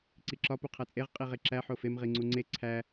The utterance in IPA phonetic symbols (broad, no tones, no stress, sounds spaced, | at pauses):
ǀ i ǁ ɒ p u qʰ æ t͡sʼ e ʁ qʼ i ʁ e ǁ æ ħ o f e m ʁ i ŋ͡ǀ u ŋ͡ǀ e ǀʰ æ